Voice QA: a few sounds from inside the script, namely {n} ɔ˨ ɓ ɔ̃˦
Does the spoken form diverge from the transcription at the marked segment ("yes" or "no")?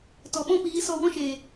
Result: yes